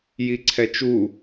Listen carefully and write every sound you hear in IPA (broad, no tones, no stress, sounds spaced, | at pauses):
j i ǀʰ ɛ t͡ʃ u